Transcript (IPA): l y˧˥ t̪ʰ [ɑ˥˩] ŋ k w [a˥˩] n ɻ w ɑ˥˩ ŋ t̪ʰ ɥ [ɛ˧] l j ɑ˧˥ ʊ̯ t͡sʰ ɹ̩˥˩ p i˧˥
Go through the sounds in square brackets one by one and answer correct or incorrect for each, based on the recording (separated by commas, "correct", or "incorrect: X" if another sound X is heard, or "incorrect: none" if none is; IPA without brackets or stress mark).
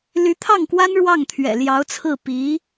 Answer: correct, incorrect: a˥, incorrect: ɛ̰˨˩